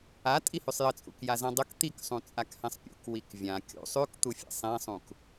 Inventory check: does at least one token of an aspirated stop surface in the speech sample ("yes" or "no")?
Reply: no